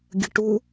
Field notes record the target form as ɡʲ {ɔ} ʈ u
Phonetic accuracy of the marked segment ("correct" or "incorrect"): incorrect